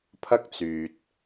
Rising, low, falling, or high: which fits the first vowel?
high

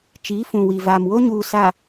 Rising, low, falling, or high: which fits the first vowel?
rising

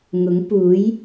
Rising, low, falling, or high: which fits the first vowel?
rising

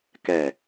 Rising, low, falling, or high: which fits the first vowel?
low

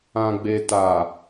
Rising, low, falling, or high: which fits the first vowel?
low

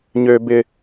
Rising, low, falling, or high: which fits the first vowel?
high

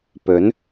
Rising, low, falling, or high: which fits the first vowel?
rising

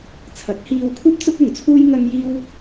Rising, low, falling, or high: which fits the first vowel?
rising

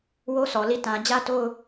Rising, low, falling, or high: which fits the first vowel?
high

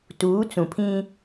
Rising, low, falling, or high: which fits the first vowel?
rising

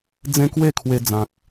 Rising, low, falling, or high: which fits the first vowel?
high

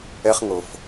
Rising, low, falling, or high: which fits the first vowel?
high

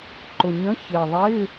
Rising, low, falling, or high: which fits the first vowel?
low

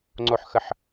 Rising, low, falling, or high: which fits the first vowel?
falling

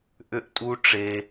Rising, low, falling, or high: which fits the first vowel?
high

